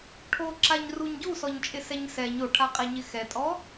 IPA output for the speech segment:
ʈʰ o ǁ a ɲ r u ɲ ɟ u s ɔ ɲ t͡ʃʼ ɪ s ɛ ɲ s ɛ ɲ o ʈʰ a qʼ ɛ ɲ ɪ x ɛ tʼ ɔ

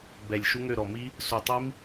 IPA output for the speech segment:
b ɛ˨˩ lʲ ʃ u˦˥ ŋ ø˦˨ ɾ ɔ˨˩ m i˦˥ | s u˨˩ tˤ i˦˥ m

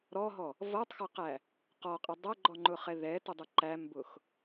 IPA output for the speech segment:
ɾ ɔ ɦ ɔ | v ʌ tˤ x ʌ q æ | q ɔ qʼ ɪ dˤ æ ɡ͡ǃ ɔ ŋ͡ǃ ʊ χ ɛ ð ɛ t ʊ dˤ ʊ ǃ æ m b ʊ x

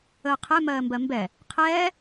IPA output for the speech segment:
əː qʰ ɛ m ɜː m b ɜ m b ɛ | qʰ ɛː

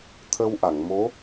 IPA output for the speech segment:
t̪ʰ ə˧ w ʔ a˨˩˨ ŋ m o˧˥

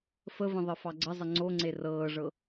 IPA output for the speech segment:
f ə v ə̃ ðˤ ɤ f ɑ ɡ͡ǀ ə zˤ ə ŋ͡ǀ o ŋ͡ǀ e r ɤː ʐ ɤ

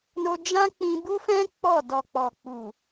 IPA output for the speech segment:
n o˧ d͡ʒ ã˦ k͡p ĩ˧ b u˦ f ɛ̃˦ k͡p ɔ˦˨ d ɔ˨ k͡p ɔ˨ k͡p u˨

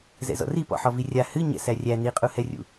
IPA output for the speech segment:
z ɛ̰ z ɔ̰ r i p ɔ̰ ħ ɔ v i rʲ a h ɨ ɲ ɛ̰ s æ rʲ æ n i qʼ u h ɛ rʲ ṵ

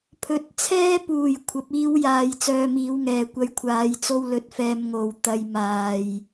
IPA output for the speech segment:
pʰ ɵ˨ t̚ t͡sʰ ɛː˥ p uː˨˩ j kʷʰ ɐ˨˥ p̚ iː˥ w j aː˧ j t͡s œː˧ m iː˨˧ w ŋ ɛː˨˩ kʷ ɐ˧ j kʷʰ aː˨˧ j t͡s o˥ w l ɵ˧ t̚ f ɛː˧ m ŋ o˨ w t̪ ɐ˧ j m aː˨ j

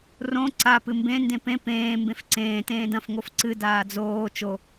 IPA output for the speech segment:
r õ ǀ a p ɨ m b ẽ n d ẽ p ẽ p ẽː m b ẽ f ǀ ẽː t ẽː d ɐ̃ f ŋ o f ǀ ɨ d aː d͡z oː t͡ʃ o

